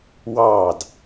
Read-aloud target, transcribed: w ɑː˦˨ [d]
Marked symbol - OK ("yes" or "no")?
yes